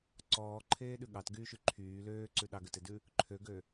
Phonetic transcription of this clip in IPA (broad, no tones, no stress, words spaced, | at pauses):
ǀɔːǃʰeːɗʉ ɠɑtɡyːʃy ǃʰyː løːǀʉ ɗɑɡøtedʉ | ǃʰøɡø